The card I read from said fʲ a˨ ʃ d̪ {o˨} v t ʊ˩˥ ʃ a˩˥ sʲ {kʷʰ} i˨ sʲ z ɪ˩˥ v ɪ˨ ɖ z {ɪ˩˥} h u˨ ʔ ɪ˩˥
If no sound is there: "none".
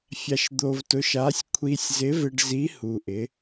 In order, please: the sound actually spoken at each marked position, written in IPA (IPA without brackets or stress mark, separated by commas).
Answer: o˨, kʷʰ, i˩˥